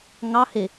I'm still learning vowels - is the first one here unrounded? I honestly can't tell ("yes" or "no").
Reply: yes